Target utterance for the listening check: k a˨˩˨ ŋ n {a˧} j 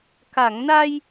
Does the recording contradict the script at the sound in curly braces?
no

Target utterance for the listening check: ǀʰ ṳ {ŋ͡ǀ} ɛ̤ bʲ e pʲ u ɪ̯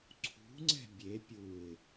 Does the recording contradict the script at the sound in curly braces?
no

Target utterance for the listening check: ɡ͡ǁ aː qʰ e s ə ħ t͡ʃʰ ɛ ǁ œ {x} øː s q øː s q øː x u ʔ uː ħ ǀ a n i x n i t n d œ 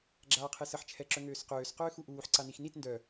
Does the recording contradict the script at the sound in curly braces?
yes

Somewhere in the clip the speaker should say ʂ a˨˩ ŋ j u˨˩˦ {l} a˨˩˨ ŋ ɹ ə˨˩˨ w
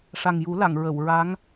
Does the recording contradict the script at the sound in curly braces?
no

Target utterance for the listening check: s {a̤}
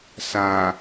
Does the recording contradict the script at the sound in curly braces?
yes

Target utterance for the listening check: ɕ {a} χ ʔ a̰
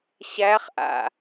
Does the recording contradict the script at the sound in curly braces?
yes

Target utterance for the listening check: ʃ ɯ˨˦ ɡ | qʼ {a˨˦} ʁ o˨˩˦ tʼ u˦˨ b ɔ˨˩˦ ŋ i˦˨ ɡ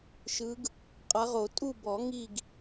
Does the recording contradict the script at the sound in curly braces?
no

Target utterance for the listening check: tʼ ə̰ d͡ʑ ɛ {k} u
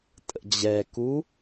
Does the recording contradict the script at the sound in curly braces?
no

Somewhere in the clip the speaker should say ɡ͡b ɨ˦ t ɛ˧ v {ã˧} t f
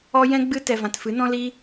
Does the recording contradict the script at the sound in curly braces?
no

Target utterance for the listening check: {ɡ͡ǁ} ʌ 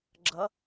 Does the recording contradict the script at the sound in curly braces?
no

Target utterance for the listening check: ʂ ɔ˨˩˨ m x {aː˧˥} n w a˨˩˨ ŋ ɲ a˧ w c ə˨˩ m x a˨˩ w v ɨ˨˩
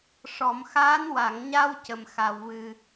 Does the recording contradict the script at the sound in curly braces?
no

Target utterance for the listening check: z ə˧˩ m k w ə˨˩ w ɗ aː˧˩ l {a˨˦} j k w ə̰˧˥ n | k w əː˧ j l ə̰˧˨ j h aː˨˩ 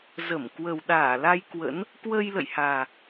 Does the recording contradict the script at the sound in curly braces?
yes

